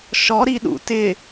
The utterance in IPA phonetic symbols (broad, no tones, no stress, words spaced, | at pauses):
ʃɔɾiɗṵ tɪ